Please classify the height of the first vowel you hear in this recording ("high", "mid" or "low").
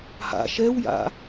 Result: low